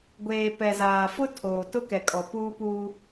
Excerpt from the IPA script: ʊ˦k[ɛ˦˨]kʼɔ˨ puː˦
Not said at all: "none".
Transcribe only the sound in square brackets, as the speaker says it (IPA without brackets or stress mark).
ɛ˨